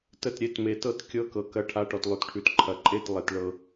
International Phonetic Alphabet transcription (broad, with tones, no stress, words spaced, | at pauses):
tə˥˩tɾʲe˥˩t me˨tɤ˥˩t kʲɤ˧˥˧kɤ˨kɐ˧˥ ʈʰa˧˥˧ʈɔ˨tlˠʉ˨tʈʰʉ˨t ǃʰɐ˨ǃʼe˥˩t lˠe˨tɭɤ˨